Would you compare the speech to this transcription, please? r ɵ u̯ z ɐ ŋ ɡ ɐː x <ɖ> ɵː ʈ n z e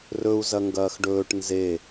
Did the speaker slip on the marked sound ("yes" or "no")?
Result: no